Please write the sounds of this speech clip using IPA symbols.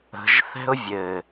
ə̤ʒ θɛ̤ʊ̯vʲɘ

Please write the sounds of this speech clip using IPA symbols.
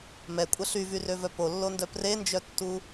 mɛkʷʼə ɬyvyrøvœ polːondœ prend͡ʒœtːu

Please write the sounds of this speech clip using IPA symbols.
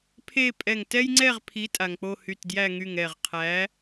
pʰe˥˧pʼɛ˧˩ŋ tɛ˥jŋ͡ǀɛ˥˧ʁpʰi˨˥ tʼa˩ŋk͡po˥˧hy˧˩tdjæ˥˧ ŋy˧˩ŋɛ˧˩ʁqʰæ˨˥

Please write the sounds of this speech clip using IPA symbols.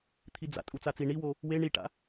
t̪ʰid͡za̰ tʼut͡sat͡si ɳiwo | we ɳiʈa̰

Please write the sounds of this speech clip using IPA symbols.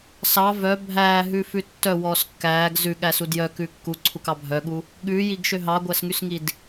sɑ vœ bʱæːɦʉfʉ tːœwɔːs kːæːɡ zʉɠæsud jœkʉ kːuǀʰukɑ bʱœɠu | ɠʉːjiɡʃø ɦɑɡʷæsŋysŋid

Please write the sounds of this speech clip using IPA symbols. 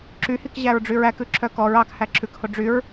ǁyhikʑæɹɖ͡ʐyɹ ækʉǁʰœ kɔɹ ɑkhæ ǁʰʉkho ɖ͡ʐyɹ

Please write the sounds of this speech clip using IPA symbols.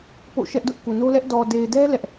po̰˦˨ʃɛ˦ʔdʊ˦ʔ ku˨no˦lɛ˦ʔ dɔ˨de˨ɪ̯dɛ˦ lɛ˦ʔ

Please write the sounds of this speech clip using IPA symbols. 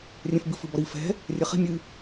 rʲɛ̃fbɨ fɨbɔɾi fɛ̤ | rʲɛχi̤ mʲɨ

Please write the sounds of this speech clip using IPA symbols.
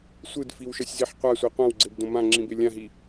sʷɯdfiwʃʌsʲziħ qʷasʷɛ qʷãwɡ͡ǀebdõ mãŋ͡ǁĩbe lʲãɦi

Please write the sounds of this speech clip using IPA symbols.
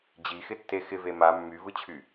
d͡ʑixɪtːe xɪve ma mːyvɯt͡ɕʰy

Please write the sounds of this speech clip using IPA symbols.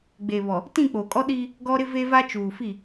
ɡ͡be˨βɔ˨ | tĩ˦˨ k͡poː˨kʼɔ˦ ɗiː˦ | ɡɔ˦ɾɪ˦ve˦va˦ t͡ʃuː˨fi˦˨

